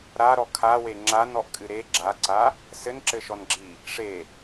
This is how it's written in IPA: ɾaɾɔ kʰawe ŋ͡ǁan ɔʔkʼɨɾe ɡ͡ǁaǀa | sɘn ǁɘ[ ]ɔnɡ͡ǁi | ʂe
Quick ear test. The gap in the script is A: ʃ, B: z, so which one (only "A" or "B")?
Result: A